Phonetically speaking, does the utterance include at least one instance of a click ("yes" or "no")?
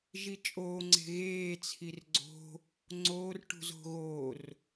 yes